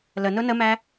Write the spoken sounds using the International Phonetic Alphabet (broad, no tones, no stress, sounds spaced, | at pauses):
l ə n ʊ n ə m æ